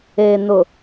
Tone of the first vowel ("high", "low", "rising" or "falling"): low